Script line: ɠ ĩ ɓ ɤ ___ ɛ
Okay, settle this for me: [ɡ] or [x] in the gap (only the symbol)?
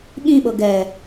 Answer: ɡ